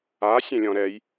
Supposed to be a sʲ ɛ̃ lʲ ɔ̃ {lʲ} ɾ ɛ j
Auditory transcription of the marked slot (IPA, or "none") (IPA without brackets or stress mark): none